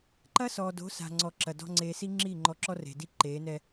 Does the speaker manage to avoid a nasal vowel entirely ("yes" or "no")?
yes